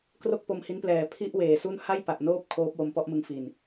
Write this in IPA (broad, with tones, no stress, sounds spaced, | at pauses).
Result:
k r o˥˩ k̚ p o˧ m h i˦˥ n p l ɛː˨˩ pʰ i˥˩ ʔ w eː˨˩ s u˥˩ n h a˥˩ j p a˨˩ ʔ n oː˦˥ p̚ kʰ oː˦˥ p̚ w o˧ m p ɔ˥˩ ʔ m ɯ˧ ŋ f i˨˩ n